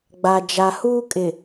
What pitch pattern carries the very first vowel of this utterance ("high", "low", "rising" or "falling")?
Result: low